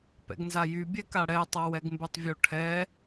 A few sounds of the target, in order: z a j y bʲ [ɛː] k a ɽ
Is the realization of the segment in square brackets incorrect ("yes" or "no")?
yes